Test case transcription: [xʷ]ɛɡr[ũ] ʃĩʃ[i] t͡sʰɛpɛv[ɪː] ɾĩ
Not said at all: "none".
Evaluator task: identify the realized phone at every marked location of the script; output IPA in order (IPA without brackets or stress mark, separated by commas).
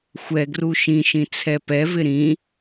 xʷ, u, ĩ, ɪ